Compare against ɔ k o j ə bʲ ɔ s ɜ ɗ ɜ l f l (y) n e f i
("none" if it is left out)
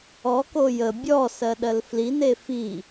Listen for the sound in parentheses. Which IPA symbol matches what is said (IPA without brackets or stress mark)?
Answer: i